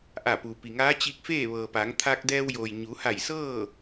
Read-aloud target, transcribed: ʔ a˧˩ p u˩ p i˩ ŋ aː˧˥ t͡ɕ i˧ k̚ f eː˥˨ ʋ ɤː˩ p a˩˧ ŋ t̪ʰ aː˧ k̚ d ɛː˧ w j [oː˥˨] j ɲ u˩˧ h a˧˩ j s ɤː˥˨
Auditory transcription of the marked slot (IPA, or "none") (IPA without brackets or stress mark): oː˩